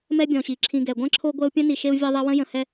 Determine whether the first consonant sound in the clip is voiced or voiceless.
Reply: voiced